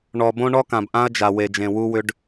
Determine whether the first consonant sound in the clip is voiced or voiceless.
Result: voiced